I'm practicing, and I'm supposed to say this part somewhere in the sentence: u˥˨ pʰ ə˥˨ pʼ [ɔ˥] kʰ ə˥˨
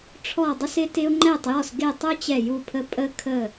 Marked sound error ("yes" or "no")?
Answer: yes